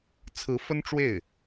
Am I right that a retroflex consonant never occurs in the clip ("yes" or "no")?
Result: no